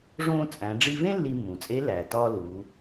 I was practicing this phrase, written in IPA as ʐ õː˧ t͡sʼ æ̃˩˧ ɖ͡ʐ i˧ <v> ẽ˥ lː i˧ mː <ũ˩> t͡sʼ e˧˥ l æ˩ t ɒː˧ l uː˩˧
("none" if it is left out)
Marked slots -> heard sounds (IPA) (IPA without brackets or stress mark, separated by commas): v, ũ˩